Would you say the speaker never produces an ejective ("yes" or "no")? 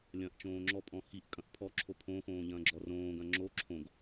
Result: no